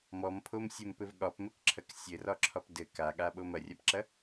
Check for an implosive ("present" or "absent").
present